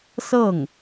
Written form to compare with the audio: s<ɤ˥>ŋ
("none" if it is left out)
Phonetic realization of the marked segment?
ɤ˥˩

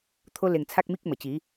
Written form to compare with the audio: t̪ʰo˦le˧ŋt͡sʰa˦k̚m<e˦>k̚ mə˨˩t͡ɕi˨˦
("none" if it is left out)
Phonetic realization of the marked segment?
i˦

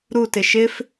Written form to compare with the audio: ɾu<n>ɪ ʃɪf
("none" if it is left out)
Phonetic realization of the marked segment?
t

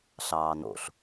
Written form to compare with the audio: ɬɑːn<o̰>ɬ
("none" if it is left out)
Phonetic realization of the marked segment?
o̰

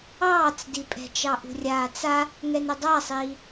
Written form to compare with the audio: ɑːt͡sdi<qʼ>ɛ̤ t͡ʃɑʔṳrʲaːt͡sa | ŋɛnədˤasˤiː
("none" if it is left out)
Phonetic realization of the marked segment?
pʼ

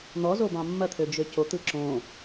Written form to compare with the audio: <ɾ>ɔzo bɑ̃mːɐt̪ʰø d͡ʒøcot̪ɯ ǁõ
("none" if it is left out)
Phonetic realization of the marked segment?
n̪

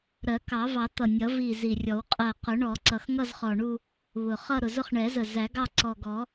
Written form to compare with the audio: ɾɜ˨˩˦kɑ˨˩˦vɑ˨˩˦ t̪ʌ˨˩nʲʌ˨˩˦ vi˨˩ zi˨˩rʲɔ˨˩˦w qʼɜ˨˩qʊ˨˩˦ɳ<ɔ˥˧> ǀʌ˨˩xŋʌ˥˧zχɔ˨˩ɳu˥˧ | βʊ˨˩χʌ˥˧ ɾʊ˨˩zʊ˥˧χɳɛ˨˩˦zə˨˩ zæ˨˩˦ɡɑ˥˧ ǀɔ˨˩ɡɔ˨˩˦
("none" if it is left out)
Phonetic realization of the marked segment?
ɔ˨˩˦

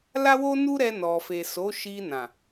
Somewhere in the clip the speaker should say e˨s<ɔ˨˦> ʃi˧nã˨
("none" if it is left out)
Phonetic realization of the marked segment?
o˨˦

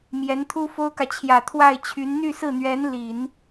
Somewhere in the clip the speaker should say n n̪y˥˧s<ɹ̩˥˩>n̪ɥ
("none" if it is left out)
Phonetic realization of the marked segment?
ɹ̩˥˩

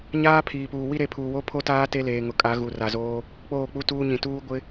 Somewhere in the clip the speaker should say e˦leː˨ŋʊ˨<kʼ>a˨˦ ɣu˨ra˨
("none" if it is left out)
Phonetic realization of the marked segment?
kʼ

